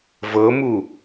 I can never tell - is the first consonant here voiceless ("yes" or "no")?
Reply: no